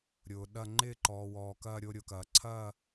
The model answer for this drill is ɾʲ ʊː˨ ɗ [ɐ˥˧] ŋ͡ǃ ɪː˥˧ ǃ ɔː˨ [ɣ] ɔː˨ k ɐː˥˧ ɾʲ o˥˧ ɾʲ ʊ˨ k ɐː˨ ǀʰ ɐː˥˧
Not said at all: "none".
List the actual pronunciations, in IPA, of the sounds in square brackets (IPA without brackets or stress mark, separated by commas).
ɐ˥˧, w